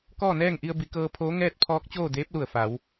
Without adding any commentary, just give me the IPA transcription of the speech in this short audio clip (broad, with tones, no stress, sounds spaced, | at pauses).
k ɔː˥˨ n ɛː˥˨ ŋ ʔ i˧ ə̯ b i˩˧ k ɤː˧ pʰ oː˧˥ ŋ ɛː˥˨ t̚ pʰ ɔː˧˥ k̚ t͡ɕ oː˥˨ d eː˧˥ p̚ l u˧˩ ə̯ f a˩˧ w